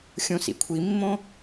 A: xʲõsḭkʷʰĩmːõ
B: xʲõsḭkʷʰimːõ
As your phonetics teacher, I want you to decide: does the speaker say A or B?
B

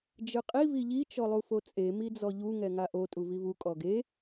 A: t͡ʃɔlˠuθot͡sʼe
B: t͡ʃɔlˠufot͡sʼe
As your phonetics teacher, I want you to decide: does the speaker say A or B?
B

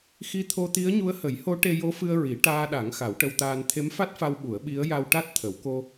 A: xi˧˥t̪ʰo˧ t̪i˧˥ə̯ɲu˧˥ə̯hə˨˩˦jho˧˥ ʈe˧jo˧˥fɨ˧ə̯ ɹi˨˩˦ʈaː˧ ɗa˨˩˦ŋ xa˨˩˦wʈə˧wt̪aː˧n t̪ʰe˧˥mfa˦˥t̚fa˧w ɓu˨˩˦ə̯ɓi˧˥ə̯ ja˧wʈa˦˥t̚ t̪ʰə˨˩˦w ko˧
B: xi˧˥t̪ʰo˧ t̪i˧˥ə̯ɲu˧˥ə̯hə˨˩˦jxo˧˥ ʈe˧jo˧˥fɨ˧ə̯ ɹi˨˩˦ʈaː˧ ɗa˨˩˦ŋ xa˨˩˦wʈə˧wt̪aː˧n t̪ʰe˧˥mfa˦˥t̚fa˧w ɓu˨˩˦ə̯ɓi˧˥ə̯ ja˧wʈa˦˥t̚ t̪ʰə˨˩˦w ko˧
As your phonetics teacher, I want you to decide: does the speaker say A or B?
A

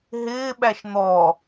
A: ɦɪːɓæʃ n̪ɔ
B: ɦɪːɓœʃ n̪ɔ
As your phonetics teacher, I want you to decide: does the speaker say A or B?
A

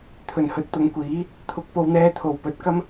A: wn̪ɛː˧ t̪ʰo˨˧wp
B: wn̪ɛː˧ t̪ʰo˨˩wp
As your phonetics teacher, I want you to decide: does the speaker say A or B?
B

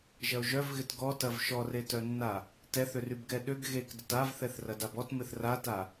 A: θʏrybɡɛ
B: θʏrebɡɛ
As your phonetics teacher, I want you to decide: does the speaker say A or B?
A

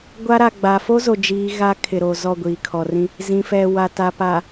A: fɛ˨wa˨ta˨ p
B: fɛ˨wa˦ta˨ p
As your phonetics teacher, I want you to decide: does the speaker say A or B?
A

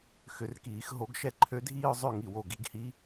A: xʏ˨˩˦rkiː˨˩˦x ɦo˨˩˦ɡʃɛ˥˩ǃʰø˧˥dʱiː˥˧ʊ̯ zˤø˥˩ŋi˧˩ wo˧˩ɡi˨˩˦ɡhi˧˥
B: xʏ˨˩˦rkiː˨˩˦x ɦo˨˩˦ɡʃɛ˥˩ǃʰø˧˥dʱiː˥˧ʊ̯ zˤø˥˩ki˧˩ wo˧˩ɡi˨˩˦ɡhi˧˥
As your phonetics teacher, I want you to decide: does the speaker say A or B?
A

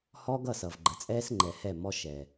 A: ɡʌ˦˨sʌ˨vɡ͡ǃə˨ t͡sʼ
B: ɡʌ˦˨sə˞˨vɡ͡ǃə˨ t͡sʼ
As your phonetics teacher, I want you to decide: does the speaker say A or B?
A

